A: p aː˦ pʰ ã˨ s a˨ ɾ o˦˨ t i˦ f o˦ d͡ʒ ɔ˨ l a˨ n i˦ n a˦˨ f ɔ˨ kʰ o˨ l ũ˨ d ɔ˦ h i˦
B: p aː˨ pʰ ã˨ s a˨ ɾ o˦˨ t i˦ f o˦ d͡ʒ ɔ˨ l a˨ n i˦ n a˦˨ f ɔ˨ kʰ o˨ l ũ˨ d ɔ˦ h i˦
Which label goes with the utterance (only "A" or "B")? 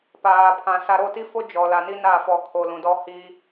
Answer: B